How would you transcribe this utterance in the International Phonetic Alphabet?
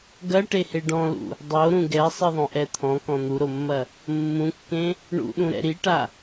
ɡ ɐ ʈ e h e ɖ ɔ̃ l ṵ | dˤ o ɾ ũ ɡ ɛ sˤ ɨ ðˤ õ ʔ ɛ t̪ʰ ɔ̃ k ɔ̃ n̪ u ɾ o mː ɐ | mː ũ kː ẽ | ɳ ṵ ɗ ũ ɾ ɛ̰ ɾ i ʈ a

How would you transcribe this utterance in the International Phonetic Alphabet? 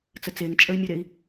t͡s ə t͡s e ŋ t͡ʃʼ ə y̯ mʲ ə ɾ e i̯

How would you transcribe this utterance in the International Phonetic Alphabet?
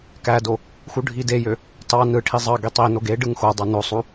k æ d o | x u ɖʱ i d e j ø | t ɑ n ɯ ʈʰ i zˤ ɑ ɡ i tˤ i n o ɡ e ɖ ɯ ŋ x o dˤ ɑ n o sˤ u

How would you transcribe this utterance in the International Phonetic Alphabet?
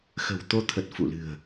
x ə̤˨˩ w t̪ o˧ t̪ʰ ə˨˩ t̚ f ṵ˧˨ l ɨ̤˨˩ ə̯

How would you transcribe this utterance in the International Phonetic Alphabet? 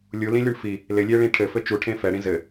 lʲ u l ĩ lʲ u ɳ f i | l ɪ lʲ e ɭ ĩ ʈʰ ɘ f ɘ t͡ʃ u ʈʰ ẽ f ɛ ɽ ĩ z ɘ

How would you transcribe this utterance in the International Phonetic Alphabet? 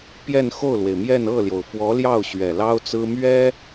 p j ɛ˥˧ n x o˥˩ ʊ̯ l w e˩ ɪ̯ m j ɛ˥˧ n ɤ˥˩ l j o˩ ʊ̯ f w ɔ˧˥ l j ɑ˥˩ ʊ̯ ɕ ɥ ɛ˨˩ l ɑ˥ ʊ̯ t͡s ɹ̩˥ m ɥ ɛ˥

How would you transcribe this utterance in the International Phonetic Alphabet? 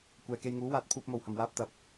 kʷ ɛː˨ k e˧ j ŋ uː˨˥ w aː˧ t̚ pʰ uː˧ p̚ m o˨˩ w h ɐ˨˩ m w aː˧ p̚ t̪ ɐ˨˥ p̚

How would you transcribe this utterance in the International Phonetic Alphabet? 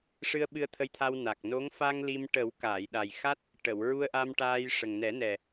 ʂ ɨ˧ ə̯ ɓ ɨ˧ ə̯ t̪ʰ ə˧ j t̪ʰ a˧ w n a˨˩ k̚ n o˧˥ ŋ f a˧ ŋ l i˧ m ʈ ə˨˩˦ w k aː˨˩˨ j ɗ a˨˩ j x a˦˥ t̚ | ʈ ə˨˩˨ w ɹ u˧ ə̯ ʔ a˧ m ʈ aː˧ j ʂ ə˨˩ ŋ n ɛ˨˩˦ n ɛ˨˩

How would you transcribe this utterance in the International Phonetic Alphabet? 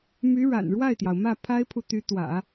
m y˧˥ ɻ a̰˨˩ n ɻ w a˥˩ ɪ̯ t̪ j ɑ˩ ʊ̯ m ä˥˩ pʰ a˥ ɪ̯ pʰ u˨ t̪ y˧˥ t̪ w ä̰˨˩˦

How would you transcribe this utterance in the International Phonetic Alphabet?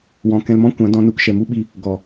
w ɔ̃˨ k ɛ̃˧ l m ɔ̃˦ kʷ ã˨˦ d ɔ̃˧ n u˧ k ʃ ɛ˨ m u˦ ɓ i˧ | ɡ ɔ˨

